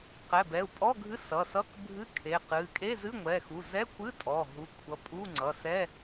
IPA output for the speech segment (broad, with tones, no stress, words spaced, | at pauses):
qɛ˩˧˩bɛ˩˧˩u̯pʼɔ˧˥˧ɡʱɨ˧˥˧ sʌ˩˧˩sʌ˧˥˧k bʱɨ˧˥˧ kʰe˩˧˩qɨ˩˧˩ kʼe˧˥˧zɨ˧˥˧ŋʷɛ˩˧˩xu˩˧˩ zɛ˧˥˧ kʷɨ˧˥˧ tʼɔ˩˧˩ ɦu˩˧˩kʷʰʌ˩˧˩ pʼu˧˥˧ŋ͡ǀʌ˩˧˩ sɛ˧˥˧